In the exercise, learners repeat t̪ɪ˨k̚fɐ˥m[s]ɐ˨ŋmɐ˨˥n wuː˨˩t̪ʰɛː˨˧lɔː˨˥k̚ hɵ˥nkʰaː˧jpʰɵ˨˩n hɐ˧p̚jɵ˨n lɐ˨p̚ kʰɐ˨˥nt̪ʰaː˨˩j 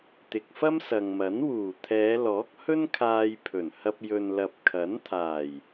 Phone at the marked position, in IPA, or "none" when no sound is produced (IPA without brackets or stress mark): s